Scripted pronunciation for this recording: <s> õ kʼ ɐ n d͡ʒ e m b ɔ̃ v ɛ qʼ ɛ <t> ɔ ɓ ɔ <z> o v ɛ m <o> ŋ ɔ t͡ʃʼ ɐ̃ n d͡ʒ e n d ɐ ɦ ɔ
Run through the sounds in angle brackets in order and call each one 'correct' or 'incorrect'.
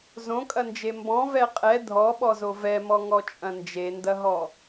incorrect, incorrect, correct, incorrect

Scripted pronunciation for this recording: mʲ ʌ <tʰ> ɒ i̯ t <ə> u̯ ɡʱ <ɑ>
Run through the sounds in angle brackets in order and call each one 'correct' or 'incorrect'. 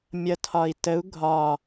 correct, correct, incorrect

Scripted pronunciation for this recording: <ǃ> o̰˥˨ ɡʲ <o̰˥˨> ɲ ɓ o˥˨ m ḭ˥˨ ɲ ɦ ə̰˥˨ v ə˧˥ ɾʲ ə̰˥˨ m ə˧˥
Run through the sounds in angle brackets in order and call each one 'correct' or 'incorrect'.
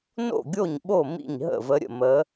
incorrect, incorrect

